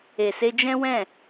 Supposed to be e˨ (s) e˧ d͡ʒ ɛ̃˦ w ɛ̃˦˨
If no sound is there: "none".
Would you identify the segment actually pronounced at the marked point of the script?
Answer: s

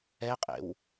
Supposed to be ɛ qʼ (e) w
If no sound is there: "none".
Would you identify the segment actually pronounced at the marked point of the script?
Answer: ḛ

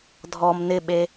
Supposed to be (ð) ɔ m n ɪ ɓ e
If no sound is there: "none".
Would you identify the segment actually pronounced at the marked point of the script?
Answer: dʱ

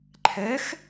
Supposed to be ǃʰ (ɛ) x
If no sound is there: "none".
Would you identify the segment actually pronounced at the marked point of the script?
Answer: ɛ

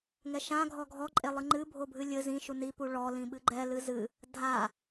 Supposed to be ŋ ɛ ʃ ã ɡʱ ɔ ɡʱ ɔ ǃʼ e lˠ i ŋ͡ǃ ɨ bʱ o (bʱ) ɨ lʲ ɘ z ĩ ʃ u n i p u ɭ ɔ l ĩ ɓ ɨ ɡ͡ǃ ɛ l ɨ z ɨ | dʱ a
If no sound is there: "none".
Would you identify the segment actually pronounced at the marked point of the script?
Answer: bʱ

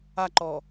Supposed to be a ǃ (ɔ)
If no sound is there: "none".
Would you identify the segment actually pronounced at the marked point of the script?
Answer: ɔ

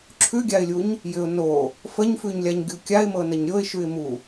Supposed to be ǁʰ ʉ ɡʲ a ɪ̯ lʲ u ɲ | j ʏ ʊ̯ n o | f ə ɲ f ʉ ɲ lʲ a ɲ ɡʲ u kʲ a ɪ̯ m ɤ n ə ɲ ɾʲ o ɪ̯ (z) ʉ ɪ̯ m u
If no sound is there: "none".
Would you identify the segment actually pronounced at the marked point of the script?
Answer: ʃ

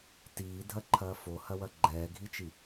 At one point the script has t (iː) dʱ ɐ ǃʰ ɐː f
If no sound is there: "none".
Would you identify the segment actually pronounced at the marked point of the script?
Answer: iː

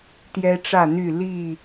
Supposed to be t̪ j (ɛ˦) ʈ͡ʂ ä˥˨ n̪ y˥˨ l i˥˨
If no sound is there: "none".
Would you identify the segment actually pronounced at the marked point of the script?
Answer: ɛ˦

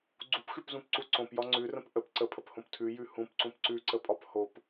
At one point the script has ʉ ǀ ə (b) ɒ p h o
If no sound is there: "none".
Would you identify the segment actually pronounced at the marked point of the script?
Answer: pʼ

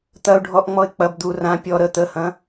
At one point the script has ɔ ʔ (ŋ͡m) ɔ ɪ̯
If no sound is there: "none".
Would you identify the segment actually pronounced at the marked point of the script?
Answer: ŋ͡m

